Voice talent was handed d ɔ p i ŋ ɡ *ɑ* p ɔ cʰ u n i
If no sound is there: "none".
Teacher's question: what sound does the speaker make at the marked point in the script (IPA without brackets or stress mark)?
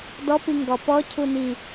ɔ